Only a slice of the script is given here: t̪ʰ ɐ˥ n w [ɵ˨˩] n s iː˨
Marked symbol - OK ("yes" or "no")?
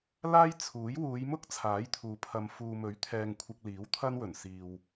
yes